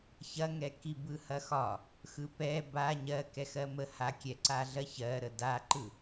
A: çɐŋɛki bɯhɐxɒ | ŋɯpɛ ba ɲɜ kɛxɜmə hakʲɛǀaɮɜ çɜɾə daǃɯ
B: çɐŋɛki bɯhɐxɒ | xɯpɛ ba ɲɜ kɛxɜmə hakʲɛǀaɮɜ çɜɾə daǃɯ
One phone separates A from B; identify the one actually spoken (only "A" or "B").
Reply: B